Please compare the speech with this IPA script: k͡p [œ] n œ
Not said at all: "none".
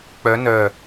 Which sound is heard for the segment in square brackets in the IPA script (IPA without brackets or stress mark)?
œ